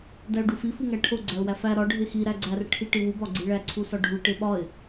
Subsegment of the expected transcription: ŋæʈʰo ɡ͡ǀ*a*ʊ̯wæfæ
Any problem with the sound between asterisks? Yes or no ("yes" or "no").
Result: yes